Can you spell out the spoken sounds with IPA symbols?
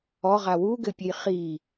ɔ ʁ a w u ɡ ɘ pʲ ɘ j χ i

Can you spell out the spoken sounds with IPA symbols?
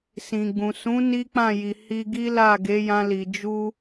s ĩ˨ ɡ͡b ũ˨ s ũ˨˦ n i˦ k͡p ã˦˨ j i˨ h i˧ ɡ i˦ l a˦˨ ɡ e˨˦ j ã˧ l i˨ d͡ʒ u˧

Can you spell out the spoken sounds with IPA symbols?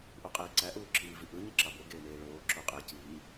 ʔ u qʼ eː ǀ æ ʔ uː ǁ iː v i ʔ ɯ ɲ i ǁ ɑ b o ɡ eː m eː ɭ oː ǁ o qʼ e c iː

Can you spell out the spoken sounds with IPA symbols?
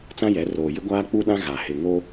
t͡s ã˦ j ɛ˨˦ r oː˨ j ɪ˦ ɡʷ aː˦ k͡p u˦ ɗ ã˦ ɣ a˨ h ɪ˨ ŋ o˦

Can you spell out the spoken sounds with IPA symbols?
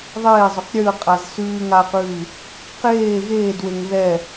ðˤ eː zˤ ʊ q ɾʲ ʉ ə̯ qʼ a z s ʉː ŋ aː q ʉː | q eː ɣ eː d w e ŋ ð ɛ

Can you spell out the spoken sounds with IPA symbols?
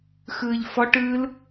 x ɯː ʎ f ɔ ʈ ɯː l

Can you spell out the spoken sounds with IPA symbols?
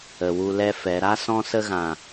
ə˨ w u˧ l ɛ˦ f ɛ˨˦ ɾ a˦ s ɔ̃˧ s ə˧ ɣ ã˨

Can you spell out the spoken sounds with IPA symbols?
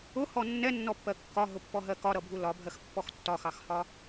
ʊ h ɔ nː ɛ nː ɔ pː ɜ kː ɒ ɦ ʊ pː ɔ ɦ ɜ k ɒ ɾ ʌ bʱ u l ɒ bʱ ɜ x pː ɔ x tː ɒ x ɑ x h ɒ

